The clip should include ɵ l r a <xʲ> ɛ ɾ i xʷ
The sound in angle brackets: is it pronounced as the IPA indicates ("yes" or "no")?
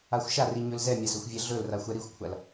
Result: no